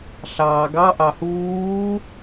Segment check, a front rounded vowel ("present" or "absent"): absent